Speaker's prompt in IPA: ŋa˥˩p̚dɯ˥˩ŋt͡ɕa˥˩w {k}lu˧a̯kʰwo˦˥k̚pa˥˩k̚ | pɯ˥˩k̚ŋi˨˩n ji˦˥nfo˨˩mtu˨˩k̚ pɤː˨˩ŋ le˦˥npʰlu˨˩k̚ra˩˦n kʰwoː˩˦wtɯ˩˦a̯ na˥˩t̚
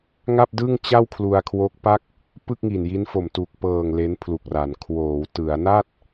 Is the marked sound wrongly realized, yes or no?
yes